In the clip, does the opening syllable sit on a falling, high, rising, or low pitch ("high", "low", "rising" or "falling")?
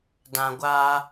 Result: low